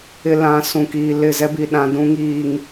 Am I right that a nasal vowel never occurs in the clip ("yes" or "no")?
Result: no